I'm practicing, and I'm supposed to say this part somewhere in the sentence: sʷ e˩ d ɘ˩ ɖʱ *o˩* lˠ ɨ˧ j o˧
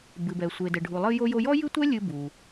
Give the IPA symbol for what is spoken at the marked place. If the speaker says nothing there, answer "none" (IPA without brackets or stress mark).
u˩